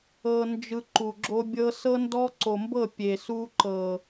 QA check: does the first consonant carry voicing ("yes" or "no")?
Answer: yes